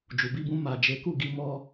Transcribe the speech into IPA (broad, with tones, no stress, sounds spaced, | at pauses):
d͡ʒ u˨ b i˧ b ũ˧ m a˨ d͡ʒ e˨˦ k u˦˨ ɡ i˧ m ɔ˧